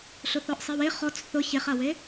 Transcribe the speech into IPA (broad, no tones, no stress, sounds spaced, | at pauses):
ɬ ʊ θ ɔ ʔ sˤ i w e χ ɔ t͡s θ ʊ ç e χ a w e